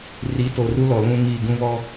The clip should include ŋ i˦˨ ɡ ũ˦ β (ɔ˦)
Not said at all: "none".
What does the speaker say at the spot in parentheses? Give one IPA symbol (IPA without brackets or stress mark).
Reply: ɔ˦